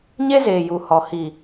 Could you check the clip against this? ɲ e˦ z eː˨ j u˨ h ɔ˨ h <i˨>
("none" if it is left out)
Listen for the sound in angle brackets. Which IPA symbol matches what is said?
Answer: i˨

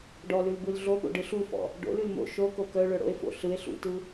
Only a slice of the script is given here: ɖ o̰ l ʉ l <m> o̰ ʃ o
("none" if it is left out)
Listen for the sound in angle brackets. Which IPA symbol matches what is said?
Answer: m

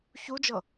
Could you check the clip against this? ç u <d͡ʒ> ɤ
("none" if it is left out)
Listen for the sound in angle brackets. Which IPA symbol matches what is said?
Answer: d͡ʒ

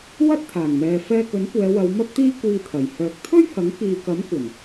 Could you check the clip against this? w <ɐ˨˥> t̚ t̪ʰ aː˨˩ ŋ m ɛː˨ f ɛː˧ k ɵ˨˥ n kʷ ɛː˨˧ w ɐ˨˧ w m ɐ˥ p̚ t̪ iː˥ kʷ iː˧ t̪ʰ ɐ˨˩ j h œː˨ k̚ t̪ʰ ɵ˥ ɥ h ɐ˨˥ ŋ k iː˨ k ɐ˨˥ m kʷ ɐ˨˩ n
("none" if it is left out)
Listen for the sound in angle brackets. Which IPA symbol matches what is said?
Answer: ɐ˥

